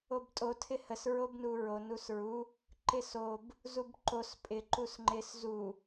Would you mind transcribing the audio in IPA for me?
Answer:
o b tʼ o tʰ ɪ h ə s ɹ o b n u ɹ o n u s ɹ u | ǃ ɪ s o b | z u b ǃ o s pʼ ɪ ǃ u s ŋ͡ǃ ɪ s z u

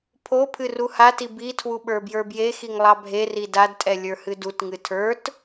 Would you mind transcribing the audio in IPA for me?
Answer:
pʰ o pʰ ɨ r u h a t i b i tʰ w u ɓ ə˞ b j ə˞ b j e x i ŋ lˠ ɑ bʱ e r i d a d tʼ ɛ lʲ ə˞ h ɨ d u t ŋ ɨ tʰ ə˞ t

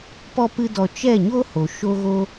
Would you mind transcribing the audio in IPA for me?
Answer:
p ɔ˦ p ɨ˦ d ɔ˧ t͡ʃ ɛ˦˨ ɲ o˦ h o˨ ʃ o˦ ɣ o˦

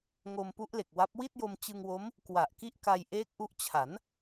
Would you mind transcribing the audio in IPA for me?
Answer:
ŋ o˧ m p u˦˥ ʔ l e˨˩ k̚ w a˦˥ p̚ w i˥˩ t̚ j o˧ m t͡ɕ ɯ˧ ŋ w o˦˥ m | k w a˨˩ ʔ k i˥˩ ʔ k a˧ j ʔ eː˦˥ k̚ ʔ u˦˥ ʔ t͡ɕʰ a˩˦ n

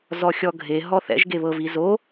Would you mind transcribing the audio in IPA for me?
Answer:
z ɔ xʲ ɔ ɡʱ e ɦ ɔ θ ɛ̰ ʒ ɡ e β ɤ v i z o

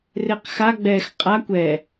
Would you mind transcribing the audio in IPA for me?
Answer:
r e q x a ɡ͡b ɛ x qʼ a kʷ ɛ

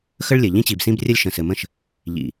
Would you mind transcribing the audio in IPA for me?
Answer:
x ə˦ ɭ lʲ ɘ˨ ʎ ĩ˦ t͡ɕ i˨ b s ĩ˦ b rʲ ə˦ lʲ ʃ ə̃˨ s ɘ˨ m ə̃˦˨ ʃ | ʎ ḭ˨

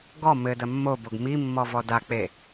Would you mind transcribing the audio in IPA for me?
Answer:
ɡ ɔ m ɘ d ɐ mː o b o ɡ m i mː ɔ v ɔ d a k͡p e

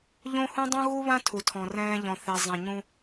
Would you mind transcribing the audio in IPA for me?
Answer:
ʎ õ˦ h ũ˦ dˤ ũ˦ ɣ u˦ β ã˦ tʰ u˨ tʰ ɔ̃˨ r ɛ̃ː˦ ʎ ɔ̃˨ θ e˨ zˤ ɛ̃˨ ɲ ũ˦

